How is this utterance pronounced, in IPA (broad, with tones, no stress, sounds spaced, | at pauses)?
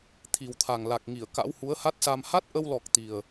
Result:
t̪ʰ i˨˩ w t̪ʰ a˨˩ ŋ l a˨˩ k̚ ŋ i˧˩ ə̯ k a̰˧˥ w h u˨˦ ə̯ h a˦˥ t̚ s a˧ m h a˦˥ t̚ ʔ ə˧ w l ɔ˨˩ k̚ t̪ i˨˩ ə̯